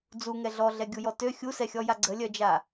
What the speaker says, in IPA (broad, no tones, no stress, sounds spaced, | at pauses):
d͡z u ŋ ɛ ɮ ɔ ɮ ɛ ɡʲ u j ɔ t ø xʲ u s ɛ xʲ ɔ j a ɡ͡ǀ ə lʲ œ d͡ʒ a